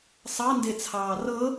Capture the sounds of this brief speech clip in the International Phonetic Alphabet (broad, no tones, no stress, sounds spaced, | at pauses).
sˤ ɑ n d e t͡sʰ ɑː r ɤ